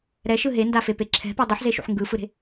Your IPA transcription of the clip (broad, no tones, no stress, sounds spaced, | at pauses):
ɾ ɛ ʃ ɯ ɦ e n d a f e p e ǁʰ ɛ̤ p ɛ dˤ ɨ ħ z e ʃ ṵ ħ ŋ ɡ ɯ f ɯ ɾ e̤